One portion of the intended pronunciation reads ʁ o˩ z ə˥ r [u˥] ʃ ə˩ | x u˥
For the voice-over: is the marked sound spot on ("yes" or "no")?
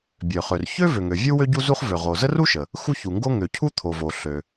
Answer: yes